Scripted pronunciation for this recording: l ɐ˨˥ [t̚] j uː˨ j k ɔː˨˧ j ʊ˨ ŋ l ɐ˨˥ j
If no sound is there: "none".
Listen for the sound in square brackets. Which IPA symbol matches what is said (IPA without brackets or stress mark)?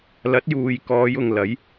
t̚